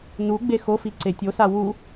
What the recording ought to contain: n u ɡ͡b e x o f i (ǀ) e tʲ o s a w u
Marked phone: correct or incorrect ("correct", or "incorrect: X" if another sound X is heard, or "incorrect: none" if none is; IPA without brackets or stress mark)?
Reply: correct